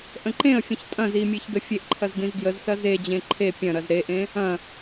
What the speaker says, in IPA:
ʔ ə̃ ǃ ẽ ə̯ fʲ ə̃ ç tʼ ɐ̃ z i mʲ e ç d ə fʲ e ʔ ǃʰ ɐ z d ĩ z d j ə z s ɐ z e d͡ʑ ẽ ǃʰ e pʲ ɐ̃ ɾ ɐ z ɾ e ʔ ẽ | ɐ̃

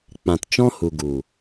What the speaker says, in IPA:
k͡p ã˨ t t͡ʃ ɔ̃˦ h u˨ ɡ u˨

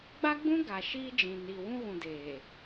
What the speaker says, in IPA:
ɡ͡b a˦ ɡ͡b ũ˦ ɡ a˨ ʃ iː˦ d͡ʒ ĩ˨ n iː˨ w ũ˦ ɣ ũ˨ d eː˨

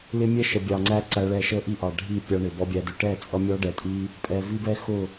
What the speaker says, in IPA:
l ɪ˦ mʲ ɛ˦ ʃ ə˨ bʲ ɑ˨ ŋ͡ǀ æ˦ ǀ æ˦ ɭ ɛ˦ ʃ ə˦ ʔ i˦ ʔ ɑ˨ ɖʱ i˦˨ pʲ ɑ˦ ɳ ɪ˨ b ɔ˦ bʲ æ˦ d ʊ˦ ʈ ɛ˦˨ t͡sʼ ʌ˦ mʲ ɔ˦ ɖ ɛ˨ tʼ i˦ | pʼ ɛ˨ v i˦ b ɛ˦ x ʊ˦˨

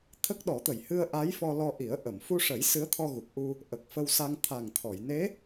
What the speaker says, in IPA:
t̪ʰ ə˦˥ k̚ ɗ ɔ˨˩˦ t̪ ə˨˩ j h ɨ˧ ə̯ ʔ a˧˥ j f ɔ˧ l ɔ˧ ʔ i˨˩˦ ə̯ ʔ ə˨˩˨ m f u˧ ʂ ə˨˩˦ j s ɨ˧˥ ə̯ t̪ʰ ɔ˧ ɣ u˨˩ k̚ ʔ u˧ | ʔ ə˨˩ k̚ f ə˧ w s a˧ ŋ t̪ʰ a˨˩ ŋ t̪ʰ ɔ˨˩˨ j n e˧˥

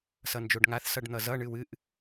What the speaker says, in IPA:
s ʌ n d͡ʒ o ɖ ŋ a θ s ʌ ɖ n̪ ʌ z ʌ ɳ ɨ w ɨ ʔ

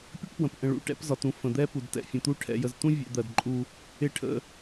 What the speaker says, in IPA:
pʲ ə˦ ʈ p w ə̃˨ p ʔ ə̃˨ ɭ ṵ˨ ʈ ɛ̰˦ p z ɒ˨ t ũ˨ f ə̃˨ d̪ ɛ˦ p u˨ d t ɛ̰˨ fʲ ə̃˨ t̪ u˦ ʈʰ ɛ̰˨ j ə˨ z t ũ˦ vʲ ɛ̰˨ d̪ ɜ˨ d ǃʼ u˦ | ɪ˦ ʈʰ ə̰˦

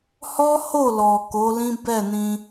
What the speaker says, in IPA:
h ɔ˦ h o˦˨ l ɔ˨ k o˨˦ l ĩ˦ b ɛ˦˨ n ĩ˧

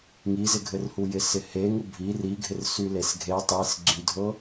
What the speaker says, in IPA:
ŋ i z ɪ ɡʱ ɘ r h u j ɪ s ɪ h e ŋ u bʱ i r i ɡʱ ɪ r s y l e s ɡʱ e tˤ i s ɡ͡ǀ y dʱ ɤ

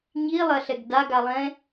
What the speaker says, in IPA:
ɲ i lˠ ɐ ɬ ɛ ɡ d a ɡ a lˠ ɛ̃

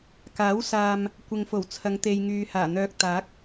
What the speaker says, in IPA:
k aː˨˥ w s aː˨ m | kʷ ɪ˨ ŋ f o˨˩ w t͡sʰ ɐ˨˧ ŋ t̪ e˧ j ŋ yː˨ h aː˨˩ n̪ œː˧ k̚ t̪ aː˨˥ k̚

